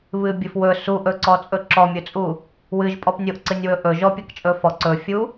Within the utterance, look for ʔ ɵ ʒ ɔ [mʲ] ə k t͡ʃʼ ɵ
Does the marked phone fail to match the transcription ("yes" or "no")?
yes